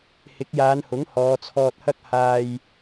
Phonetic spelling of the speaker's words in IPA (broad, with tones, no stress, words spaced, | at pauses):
hɪ˨˥k̚jaː˨˧nhʊ˨˥ŋ hɔː˨˧t͡sʰɔː˧t̚hɐ˥k̚ haː˧j